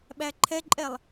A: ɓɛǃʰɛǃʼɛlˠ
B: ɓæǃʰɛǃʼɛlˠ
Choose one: B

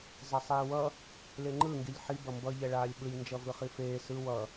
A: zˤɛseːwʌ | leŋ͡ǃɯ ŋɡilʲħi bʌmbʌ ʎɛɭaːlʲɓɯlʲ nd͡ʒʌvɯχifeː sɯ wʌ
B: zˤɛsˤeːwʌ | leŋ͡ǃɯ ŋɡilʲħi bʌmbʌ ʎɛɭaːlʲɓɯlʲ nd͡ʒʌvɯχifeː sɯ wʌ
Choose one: B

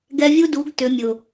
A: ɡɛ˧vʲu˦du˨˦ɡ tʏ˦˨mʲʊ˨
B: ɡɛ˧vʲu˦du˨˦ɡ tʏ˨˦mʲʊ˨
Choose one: B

